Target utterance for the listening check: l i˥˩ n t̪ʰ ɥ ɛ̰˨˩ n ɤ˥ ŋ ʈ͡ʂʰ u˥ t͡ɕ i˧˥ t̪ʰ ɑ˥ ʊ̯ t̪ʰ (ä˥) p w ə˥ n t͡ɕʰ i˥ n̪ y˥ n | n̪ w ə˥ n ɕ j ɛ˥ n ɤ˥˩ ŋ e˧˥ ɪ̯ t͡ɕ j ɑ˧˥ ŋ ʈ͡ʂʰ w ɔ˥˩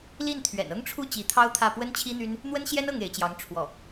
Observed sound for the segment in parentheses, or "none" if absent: ä˥˩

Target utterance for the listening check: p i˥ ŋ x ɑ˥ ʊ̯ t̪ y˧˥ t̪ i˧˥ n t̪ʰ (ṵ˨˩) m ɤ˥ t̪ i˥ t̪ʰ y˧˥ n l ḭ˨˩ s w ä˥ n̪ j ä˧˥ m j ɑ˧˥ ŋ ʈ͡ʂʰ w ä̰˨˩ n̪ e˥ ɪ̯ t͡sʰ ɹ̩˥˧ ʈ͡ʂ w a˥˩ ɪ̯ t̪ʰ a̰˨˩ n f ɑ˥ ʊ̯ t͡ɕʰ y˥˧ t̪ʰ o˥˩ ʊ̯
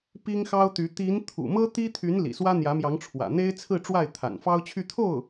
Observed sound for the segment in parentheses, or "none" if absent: ṵ˨˩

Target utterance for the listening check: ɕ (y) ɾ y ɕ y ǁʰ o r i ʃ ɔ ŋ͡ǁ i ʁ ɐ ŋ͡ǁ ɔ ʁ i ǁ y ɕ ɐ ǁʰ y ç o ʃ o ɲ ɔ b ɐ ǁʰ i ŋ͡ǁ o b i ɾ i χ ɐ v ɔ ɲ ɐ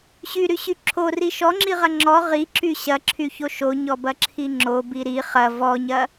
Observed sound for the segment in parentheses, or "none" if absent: y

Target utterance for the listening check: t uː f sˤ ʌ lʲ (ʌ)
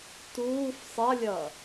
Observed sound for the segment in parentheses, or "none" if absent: ʌː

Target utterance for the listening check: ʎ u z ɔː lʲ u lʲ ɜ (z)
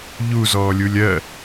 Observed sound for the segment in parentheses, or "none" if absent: none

